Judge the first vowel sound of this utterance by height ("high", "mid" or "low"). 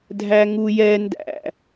low